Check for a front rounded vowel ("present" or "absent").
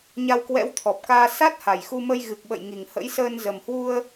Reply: absent